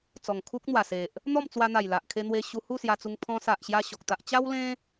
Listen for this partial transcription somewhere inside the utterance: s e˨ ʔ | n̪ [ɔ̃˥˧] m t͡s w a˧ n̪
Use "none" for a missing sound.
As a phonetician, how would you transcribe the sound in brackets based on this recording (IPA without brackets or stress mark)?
ɔ˥˧